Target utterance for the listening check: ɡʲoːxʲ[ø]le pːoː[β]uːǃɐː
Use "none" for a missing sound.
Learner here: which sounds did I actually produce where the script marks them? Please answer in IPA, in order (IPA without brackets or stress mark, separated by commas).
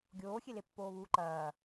e, β